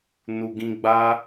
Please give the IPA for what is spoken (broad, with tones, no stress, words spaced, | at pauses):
nu˨ɡĩ˧ ɡ͡baː˦